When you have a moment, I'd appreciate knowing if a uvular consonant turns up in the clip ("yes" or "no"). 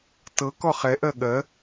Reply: yes